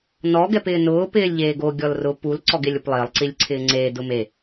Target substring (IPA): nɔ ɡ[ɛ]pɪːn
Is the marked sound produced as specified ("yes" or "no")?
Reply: yes